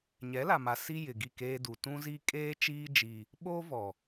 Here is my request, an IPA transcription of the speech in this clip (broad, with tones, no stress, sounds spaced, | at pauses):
ɲ ɛ˨˦ l a˨ m a˨ s i˦ j ɪ˨ ɡ i˦˨ k eː˦ d u˨ t ũ˦ z i˦ kʼ eː˦ t͡ʃ iː˦ d͡ʒ i˦ | ɓ oː˦ v ɔ˨